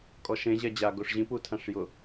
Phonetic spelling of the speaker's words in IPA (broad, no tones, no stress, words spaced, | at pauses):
kʼɔʃẽ ʑɛd͡ʑa ɡoʂʑĩpu tʰãʂjʊ